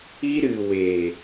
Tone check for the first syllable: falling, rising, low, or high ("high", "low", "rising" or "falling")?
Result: high